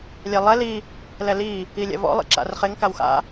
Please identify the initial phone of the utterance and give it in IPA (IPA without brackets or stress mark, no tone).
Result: lʲ